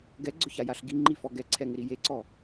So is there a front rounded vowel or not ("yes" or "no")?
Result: no